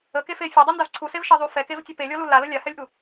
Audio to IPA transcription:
ə k e f e fʲ e dˤ u n d a v ǀʰ u s e v ʃ e ðˤ u f ɛ k e v tʲ ɒ p e lʲ ɔ l u l a l ə lʲ a h ɛ lʲ ʔ u

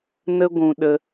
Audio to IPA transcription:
n ə˦ ɡʷ ũ˧ ɗ ə˧

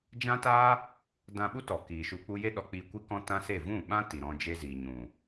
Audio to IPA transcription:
d͡ʒ ã˦ t aː˦ | d ã˧ ɓ u˦ t ɔ˨ k iː˨ ʃ u˧ k͡p u˦ j e˦ ɗ ɔ˧ k͡p iː˧ kʷ i˦ k ɔ̃˦ t ã˦ s e˦˨ v ũ˦˨ ɓ ã˦ t i˨ ɾ ɔ̃˧ d͡ʒ e˧ z iː˨ ɲ ũ˨

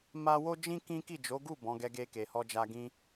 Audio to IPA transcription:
m a˦ w o˦ d͡ʒ ĩ˦ k ĩ˦ k i˦˨ d͡ʒ o˨˦ ɡ u˦˨ b ɔ̃˨˦ ɡ ɛ˧ ɡ e˧ k e˨ h ɔ˧ d͡ʒ a˧ ɡ ĩ˧

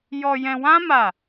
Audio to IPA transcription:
j ɔ˧ j ɛ̃˧ w ã˦ m a˦˨

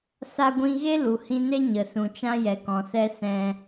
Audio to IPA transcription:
s a˧ ɡʷ ĩ˧ ɣ e˦ l u˨ h ĩ˧ n e˦ ɲ ə˨ s ũ˨ t͡ʃ ã˦ j ɛ˨ k ɔ̃˨ s ɛ˧ s ɛ̃˧

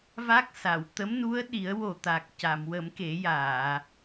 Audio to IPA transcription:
v a˦˥ k̚ s a˨˩˨ w t̪ ə˧˥ m n u˧˥ ə̯ ɗ i˨˩˦ ə̯ w o˨˩ t̪ a˨˩ k̚ c a˨˩˨ m w ə˨˩˦ m k e˨˩˦ j aː˨˩˨

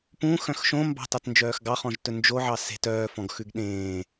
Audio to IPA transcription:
p ũ x œ̃ x ʃ õ m b ɑ̤ t ɑ t n d͡ʒ œː x ɡ ɑ χ ɔ̃ ʒ t ɵ n d͡ʒ o ʕ ɑ s e̤ t œː f ɔ̃ ɡ x ʉ ɡ ɗ ẽː

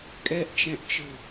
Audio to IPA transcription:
kʼ ɛ ʔ t͡ʃ ɛ̃ ʔ t͡ʃ ɯ

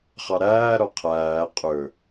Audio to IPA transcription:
χ ɑ ɾ æː ɾ ɔ qʰ æː qʼ ɵ

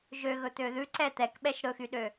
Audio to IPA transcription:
ʒ ø ɣ ɵ t̪ ø ð ʉ ǀ ɛ t̪ ɛ k ɓ ɛ ʃ ɾ ɵ x y ɗ ø

